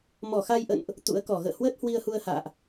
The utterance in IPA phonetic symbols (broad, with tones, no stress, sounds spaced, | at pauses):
m ɔ˧˩ x a˧ j ʔ ə̰˧˨ n ʔ | t̪ ṵ˧˥ ə̯ k ɔ˧˩ ɣ ə̰ː˧˨ h w əː˦˥ t̚ h w i˧ ə̯ h u˧ ə̯ h a̰ː˧˨ ʔ